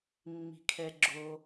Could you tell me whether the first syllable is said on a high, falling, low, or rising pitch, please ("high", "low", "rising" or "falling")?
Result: low